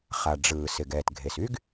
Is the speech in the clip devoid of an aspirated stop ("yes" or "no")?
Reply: yes